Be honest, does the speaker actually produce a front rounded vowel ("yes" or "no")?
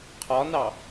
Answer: no